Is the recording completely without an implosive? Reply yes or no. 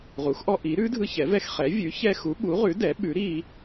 no